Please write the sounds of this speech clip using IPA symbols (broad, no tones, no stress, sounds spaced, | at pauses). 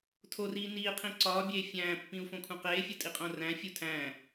tʰ o r iː n iː qʰ ĩ ǀ ɒː bʲ eː fʲ æ̃ː pː ĩ u̯ f õ kʰ ũ q eː fʲ u tʼ i qʼ õ r æ̃ fʲ u tʰ æ̃ː